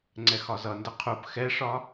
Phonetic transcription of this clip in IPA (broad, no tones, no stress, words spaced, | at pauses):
ŋ͡ǀɛxɒzʌndə qʰup xɛʂɒ